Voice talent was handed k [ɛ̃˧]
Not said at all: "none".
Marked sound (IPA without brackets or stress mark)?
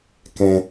ɛ̃˧